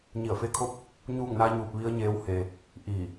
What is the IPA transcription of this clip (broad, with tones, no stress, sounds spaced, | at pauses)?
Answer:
ɲ i˧˩ ə̯ f e˧˥ kʰ o˥˨ p̚ | ɲ uː˥˨ ŋ n a˧˥ ɲ uː˧ p̚ ʋ i˧˥ ə̯ ɲ eː˧˥ w h eː˧ | ʔ iː˧˩